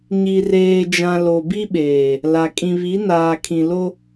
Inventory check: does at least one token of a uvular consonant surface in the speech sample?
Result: no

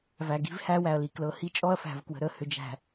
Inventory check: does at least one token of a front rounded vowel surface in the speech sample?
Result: yes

